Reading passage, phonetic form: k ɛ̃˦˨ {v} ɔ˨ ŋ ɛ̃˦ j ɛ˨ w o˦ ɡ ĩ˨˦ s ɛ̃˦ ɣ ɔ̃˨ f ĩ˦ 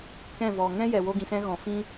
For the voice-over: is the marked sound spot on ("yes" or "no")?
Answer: yes